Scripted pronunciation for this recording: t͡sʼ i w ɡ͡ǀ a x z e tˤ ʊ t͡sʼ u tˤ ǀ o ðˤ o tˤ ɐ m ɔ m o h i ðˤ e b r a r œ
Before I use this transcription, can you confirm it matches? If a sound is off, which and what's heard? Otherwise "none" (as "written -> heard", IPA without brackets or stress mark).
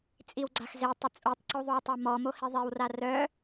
b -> w